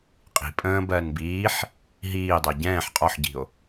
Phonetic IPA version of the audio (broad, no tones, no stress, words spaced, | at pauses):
qʼi̤ pʼə̃ː bɜːnbiːħ | ɦiː dˤɜɟɛ̃ːħ qʼɒħɟi̤o̯